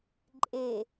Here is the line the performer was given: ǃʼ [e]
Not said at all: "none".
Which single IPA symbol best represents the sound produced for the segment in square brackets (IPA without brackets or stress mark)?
e